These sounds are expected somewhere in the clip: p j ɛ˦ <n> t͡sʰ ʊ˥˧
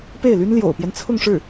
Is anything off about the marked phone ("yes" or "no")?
no